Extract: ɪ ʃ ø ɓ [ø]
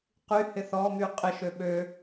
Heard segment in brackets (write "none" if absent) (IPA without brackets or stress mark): ø